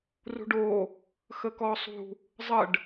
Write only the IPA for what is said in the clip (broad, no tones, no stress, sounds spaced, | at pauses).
r ṳ ɖ oː | x ə k ɔː sˤ ṳ | zˤ ə ɖ